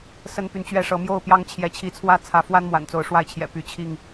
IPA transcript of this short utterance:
s ə˦ n p y˨ n t͡ɕ ɥ ɛ˥˨ ʂ ɤ˨˦ m j o˥˨ ʊ̯ p j ɑ˦ ŋ t͡ɕʰ j ɛ˨˦ t͡ɕʰ i˨˦ t͡sʰ w ä˥˨ t͡sʰ ä˨˦ f w a˦ n m w a̰˨˩ n t͡s o˨˦ ʊ̯ ʂ w a˥˨ ɪ̯ t͡ɕʰ j ɛ̰˨˩ p y˨˦ t͡ɕʰ i˥˨ ŋ

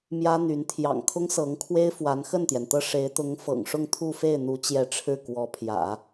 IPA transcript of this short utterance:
m j ä˥ n̪ y˧˥ n t̪ʰ j ɑ̰˨˩ ŋ kʰ ʊ˥ ŋ s ɤ˧˥ ŋ kʰ w e˥ ɪ̯ f w a˧˥ n x ə˥˩ n t̪ j ɛ˩ n t̪ ɤ˥˩ ʂ e˧˥ ɪ̯ t̪ ʊ˧˥ ŋ f ɤ̰˨˩ ŋ ʂ ʊ˥˧ ŋ t̪ʰ u˥˧ f e˥˩ ɪ̯ n̪ u˧˥ t͡ɕ j ɛ˧˥ ʈ͡ʂʰ ɻ̩˥˩ k w ɔ˧˥ pʰ j ä̰˨˩˦

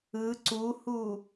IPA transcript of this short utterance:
ɯ ǀ u h u

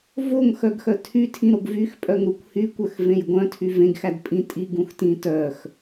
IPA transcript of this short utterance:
v o ŋ x œ ɡ x œ tʰ y tʰ ĩ ɾ o ɡ v y x pʼ œ ŋ ɾ u kʷ h y kʷ œ x v ẽ j ɡʷ œ̃ tʰ y v ẽ ɡ x æ d pʼ ĩ tʼ i ɡ ũ x t ĩ t œ x

